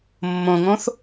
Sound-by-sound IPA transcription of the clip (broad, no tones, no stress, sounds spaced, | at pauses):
mː õ ŋ õ θ